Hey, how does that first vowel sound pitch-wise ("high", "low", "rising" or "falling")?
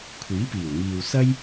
rising